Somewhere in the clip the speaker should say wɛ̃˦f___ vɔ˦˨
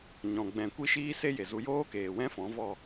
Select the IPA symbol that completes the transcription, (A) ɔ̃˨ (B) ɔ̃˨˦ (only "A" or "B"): B